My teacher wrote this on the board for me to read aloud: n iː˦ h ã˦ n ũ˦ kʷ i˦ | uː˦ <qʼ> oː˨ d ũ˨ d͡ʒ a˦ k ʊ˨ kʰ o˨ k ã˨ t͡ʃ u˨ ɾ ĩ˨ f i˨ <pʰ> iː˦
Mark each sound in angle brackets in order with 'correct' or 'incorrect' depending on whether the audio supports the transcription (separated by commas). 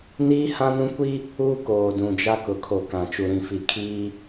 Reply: incorrect, incorrect